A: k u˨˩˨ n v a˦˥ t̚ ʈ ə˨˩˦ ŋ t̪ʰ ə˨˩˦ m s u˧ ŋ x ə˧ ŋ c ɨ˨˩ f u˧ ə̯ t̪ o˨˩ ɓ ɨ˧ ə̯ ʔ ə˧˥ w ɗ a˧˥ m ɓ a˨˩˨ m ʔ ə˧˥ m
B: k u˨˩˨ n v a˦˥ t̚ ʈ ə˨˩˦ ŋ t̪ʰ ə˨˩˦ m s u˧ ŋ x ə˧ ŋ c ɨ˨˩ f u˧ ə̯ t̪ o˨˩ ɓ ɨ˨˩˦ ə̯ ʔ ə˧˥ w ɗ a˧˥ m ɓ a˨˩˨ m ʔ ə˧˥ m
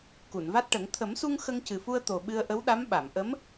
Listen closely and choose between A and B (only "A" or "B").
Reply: A